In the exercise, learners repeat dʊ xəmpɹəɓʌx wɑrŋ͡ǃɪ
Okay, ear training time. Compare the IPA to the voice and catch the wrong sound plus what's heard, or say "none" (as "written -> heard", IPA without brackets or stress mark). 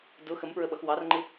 none